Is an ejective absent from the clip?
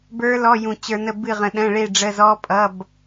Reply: no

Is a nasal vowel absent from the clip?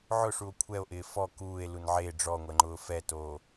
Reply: yes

